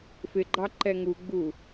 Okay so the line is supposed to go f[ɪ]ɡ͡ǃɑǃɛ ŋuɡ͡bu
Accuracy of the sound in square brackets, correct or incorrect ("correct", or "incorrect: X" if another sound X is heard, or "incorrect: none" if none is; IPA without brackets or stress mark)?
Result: correct